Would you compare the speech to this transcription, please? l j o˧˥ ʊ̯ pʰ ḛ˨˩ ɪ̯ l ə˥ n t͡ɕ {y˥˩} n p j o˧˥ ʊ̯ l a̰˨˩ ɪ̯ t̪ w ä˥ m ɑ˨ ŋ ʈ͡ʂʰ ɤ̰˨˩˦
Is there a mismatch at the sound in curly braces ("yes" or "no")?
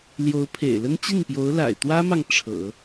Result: yes